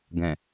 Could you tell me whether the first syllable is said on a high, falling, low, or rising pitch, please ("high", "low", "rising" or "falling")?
low